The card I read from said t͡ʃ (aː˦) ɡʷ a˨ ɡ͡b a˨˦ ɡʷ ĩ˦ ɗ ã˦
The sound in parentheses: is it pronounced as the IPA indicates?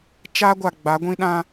yes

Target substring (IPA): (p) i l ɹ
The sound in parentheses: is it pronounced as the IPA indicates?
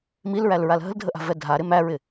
no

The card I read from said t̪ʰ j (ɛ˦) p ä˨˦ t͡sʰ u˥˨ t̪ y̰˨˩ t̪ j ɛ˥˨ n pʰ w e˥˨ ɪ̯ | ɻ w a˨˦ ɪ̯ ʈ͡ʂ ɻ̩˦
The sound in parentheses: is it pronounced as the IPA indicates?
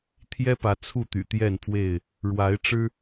yes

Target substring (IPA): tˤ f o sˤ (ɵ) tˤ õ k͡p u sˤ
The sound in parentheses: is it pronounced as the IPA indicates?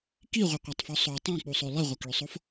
no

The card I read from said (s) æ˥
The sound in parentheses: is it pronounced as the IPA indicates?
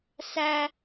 yes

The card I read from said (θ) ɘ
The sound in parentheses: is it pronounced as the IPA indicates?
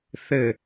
yes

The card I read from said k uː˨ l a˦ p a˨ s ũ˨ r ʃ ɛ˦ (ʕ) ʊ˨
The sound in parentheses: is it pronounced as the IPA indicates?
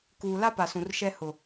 no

